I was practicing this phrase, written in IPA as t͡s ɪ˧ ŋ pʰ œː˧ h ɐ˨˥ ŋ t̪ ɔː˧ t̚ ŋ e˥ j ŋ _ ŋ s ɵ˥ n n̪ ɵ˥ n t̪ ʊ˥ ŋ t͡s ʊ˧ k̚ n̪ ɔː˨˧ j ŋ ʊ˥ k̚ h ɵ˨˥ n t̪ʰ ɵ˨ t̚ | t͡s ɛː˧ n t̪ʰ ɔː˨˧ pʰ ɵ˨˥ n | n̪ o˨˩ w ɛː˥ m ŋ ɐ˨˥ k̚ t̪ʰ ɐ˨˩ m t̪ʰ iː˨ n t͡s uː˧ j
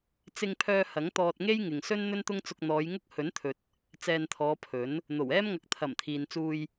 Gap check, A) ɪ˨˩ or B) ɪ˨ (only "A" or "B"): B